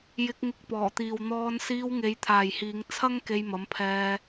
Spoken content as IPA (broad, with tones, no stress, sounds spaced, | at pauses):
j ɪ˧ k̚ ŋ ɪ˧ k̚ p ɔː˨˩ t̪ iː˨ w n̪ ɔː˧ n s iː˧ w ŋ e˨˧ j t̪ʰ aː˨ j h iː˨˧ ŋ t͡sʰ ɐ˥ ŋ k e˧ j m ɐ˨˥ m pʰ ɛː˧